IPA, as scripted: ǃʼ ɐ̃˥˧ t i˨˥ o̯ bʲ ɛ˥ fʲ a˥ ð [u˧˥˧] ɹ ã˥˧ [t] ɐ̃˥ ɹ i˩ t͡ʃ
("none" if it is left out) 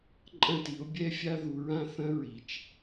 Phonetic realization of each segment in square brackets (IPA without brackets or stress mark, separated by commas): u˨˥, θ